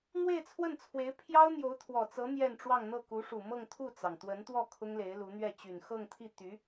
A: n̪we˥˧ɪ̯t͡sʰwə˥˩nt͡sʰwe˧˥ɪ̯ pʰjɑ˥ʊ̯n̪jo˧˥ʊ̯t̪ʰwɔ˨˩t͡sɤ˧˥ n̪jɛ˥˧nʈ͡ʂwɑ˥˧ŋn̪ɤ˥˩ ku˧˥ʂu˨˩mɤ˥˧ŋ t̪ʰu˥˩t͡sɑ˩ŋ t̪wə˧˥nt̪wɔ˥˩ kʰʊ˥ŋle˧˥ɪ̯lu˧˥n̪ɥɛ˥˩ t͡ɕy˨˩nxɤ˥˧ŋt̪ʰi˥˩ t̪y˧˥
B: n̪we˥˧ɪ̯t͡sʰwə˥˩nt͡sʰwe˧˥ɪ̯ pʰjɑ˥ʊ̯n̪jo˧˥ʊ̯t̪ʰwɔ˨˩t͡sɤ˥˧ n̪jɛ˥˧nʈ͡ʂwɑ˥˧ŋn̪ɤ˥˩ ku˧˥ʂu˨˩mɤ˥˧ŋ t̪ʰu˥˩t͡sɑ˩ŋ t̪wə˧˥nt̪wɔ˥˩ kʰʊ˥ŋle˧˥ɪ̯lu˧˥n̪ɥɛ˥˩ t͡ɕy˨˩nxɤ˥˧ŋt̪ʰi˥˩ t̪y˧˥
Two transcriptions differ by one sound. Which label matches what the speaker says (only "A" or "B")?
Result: A